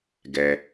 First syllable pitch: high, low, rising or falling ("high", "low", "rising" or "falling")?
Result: low